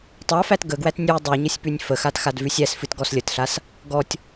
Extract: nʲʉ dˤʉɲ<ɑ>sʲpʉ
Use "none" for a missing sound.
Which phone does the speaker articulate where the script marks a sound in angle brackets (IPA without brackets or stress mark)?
ə